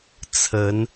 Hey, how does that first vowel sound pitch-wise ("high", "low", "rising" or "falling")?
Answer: rising